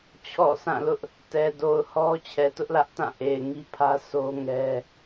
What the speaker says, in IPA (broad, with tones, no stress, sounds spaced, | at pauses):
t͡ɕʰ ɔ̰˦˨ s ã˦˨ l ʊ˦ ʔ | t ɛ˨ d o˨ ʊ̯ h ɔ˦ t͡ɕʰ ɛ˨ t ʊ˦ ʔ l ä˦ ʔ t ã˦˨ ʔ e˨ ɪ̯ ŋ i˦ pʰ ä˦ s o˦ ŋ ɛ˦